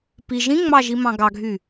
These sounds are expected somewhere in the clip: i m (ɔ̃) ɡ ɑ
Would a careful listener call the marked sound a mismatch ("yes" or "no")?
yes